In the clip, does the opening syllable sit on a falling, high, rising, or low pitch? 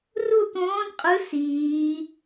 falling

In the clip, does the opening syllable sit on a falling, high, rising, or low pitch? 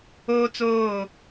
high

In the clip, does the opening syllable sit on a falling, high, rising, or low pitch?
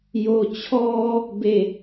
low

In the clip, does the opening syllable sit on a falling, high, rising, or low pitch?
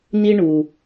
high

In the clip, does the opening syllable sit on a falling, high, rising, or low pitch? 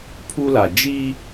high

